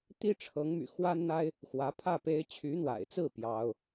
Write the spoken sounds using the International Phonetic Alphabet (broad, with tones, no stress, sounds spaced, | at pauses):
t̪ i˥ ʈ͡ʂʰ ɤ˧˥ ŋ m y̰˨˩ x w a˥ n n̪ a˥ ɪ̯ | x w ä˧˥ pʰ ä˥˩ p e˥ ɪ̯ t͡ɕʰ y˧˥ n̪ w a̰˨˩ ɪ̯ t͡s ɹ̩˥˩ p j ɑ˥ ʊ̯